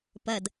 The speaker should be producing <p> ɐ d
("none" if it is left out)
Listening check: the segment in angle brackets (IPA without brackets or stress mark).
p